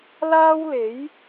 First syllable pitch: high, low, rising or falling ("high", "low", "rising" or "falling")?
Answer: high